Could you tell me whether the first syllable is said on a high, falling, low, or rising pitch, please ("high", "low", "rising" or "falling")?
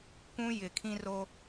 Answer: high